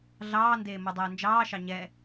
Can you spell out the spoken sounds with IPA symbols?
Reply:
ɮɑːndeː modˤɛːnd͡ʒɑːʃɑ ɲɛ

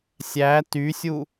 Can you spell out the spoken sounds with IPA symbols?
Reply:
sʲæ tysʲu

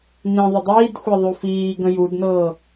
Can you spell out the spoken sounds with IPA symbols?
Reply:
nĩ ðˤɪdˤiːdxʷɛ ðˤufiː ɡə̃judnɤː

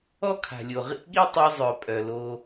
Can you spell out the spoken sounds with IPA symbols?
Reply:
ɔ˦kʰa̤˨lʲo˨ ʁḭ˦ɠi˦tˤi˧ zˤœ˨pʼœ˨lo˧

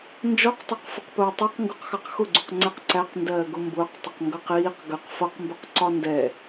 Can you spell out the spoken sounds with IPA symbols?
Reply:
nd͡ʒɔqtˤɑqfəqpʊː tˤʌq ŋɡuqxɑqxʊɡ͡ǀuq ŋ͡ǀɛqǀæqndɜː ɡʊmbʊːqtˤɪq ŋɡʌqiːq ɡəq fʌqmbəq ǀɒndɛ

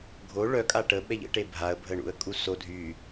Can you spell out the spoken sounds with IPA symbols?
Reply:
ɡʱo ɭœkʼa ʈə ɓɛʎə̰ʈe bʱaə̯bʱə ɳṵə̯kʼuso dʱy

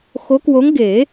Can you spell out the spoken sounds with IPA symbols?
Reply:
xo˧˥kwo˧˥ŋɡe˨˩˦

